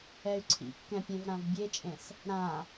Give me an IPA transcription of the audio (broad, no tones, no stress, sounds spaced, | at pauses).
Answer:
ɛ y̯ ǀʰ ḭ kː ɛ̃ pʲ ɛ̃ v ɾ ã v bʲ e t͡ʃʼ ẽ s | ɾ ã